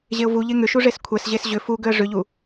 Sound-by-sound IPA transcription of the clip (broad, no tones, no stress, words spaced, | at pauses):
ʑeʊ̯vuʎe ŋʏʃu ʐeskʷʰɛsʑes ʑʏ fuɡʏə̯ ʐʏʎu